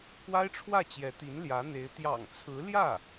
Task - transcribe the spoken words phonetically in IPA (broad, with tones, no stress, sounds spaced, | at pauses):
pʰ w a˥ ɪ̯ ʈ͡ʂʰ w ä˥˩ t͡ɕ j ɛ˧˥ t̪ i˧˥ n l j ä˧˥ n̪ e˧˥ ɪ̯ t̪ j ɑ̰˨˩ ŋ t͡sʰ ɹ̩˧˥ l j ä˥˩